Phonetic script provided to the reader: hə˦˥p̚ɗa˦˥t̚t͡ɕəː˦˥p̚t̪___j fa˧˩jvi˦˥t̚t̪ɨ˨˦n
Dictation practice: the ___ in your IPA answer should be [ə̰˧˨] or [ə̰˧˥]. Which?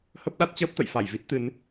ə̰˧˨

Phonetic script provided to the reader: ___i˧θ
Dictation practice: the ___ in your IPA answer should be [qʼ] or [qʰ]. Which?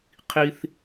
qʰ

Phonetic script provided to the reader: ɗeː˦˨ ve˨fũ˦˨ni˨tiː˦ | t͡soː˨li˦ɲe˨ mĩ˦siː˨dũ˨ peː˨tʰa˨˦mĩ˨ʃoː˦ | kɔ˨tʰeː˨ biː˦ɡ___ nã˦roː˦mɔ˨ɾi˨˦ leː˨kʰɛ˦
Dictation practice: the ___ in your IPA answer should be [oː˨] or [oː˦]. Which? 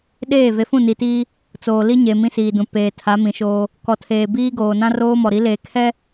oː˨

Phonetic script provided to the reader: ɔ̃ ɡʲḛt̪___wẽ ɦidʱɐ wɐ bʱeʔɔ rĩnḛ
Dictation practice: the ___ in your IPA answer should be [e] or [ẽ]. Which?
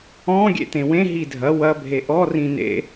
ẽ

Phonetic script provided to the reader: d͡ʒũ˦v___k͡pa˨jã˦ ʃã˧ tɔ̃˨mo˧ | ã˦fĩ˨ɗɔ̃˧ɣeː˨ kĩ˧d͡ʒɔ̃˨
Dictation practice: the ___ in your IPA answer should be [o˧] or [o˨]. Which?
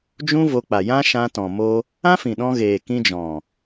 o˧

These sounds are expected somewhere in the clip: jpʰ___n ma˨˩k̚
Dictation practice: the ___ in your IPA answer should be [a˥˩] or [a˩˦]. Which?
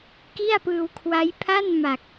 a˥˩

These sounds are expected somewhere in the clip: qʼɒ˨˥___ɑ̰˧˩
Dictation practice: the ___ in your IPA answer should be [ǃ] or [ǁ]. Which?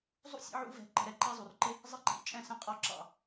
ǁ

